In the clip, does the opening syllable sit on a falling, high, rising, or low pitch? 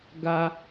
high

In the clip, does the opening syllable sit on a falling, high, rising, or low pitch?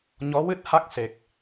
rising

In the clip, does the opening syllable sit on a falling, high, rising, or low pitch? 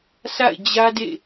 falling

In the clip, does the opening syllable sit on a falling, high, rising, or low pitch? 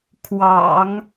low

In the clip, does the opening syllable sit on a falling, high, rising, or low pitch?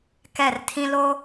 falling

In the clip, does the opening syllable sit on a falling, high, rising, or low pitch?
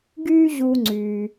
high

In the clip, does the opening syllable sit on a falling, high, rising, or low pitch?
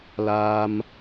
high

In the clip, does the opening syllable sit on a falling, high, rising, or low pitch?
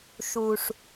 low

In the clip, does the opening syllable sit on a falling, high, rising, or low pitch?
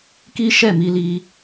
high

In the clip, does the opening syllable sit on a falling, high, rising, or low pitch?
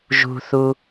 low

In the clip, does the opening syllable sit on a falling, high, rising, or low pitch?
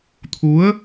rising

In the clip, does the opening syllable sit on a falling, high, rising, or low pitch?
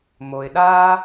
low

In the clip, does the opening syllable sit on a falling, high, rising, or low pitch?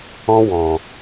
high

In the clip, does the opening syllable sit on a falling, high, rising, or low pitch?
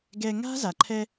low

